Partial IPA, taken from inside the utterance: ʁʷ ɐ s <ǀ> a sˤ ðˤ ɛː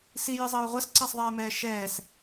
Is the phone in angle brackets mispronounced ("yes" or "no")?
no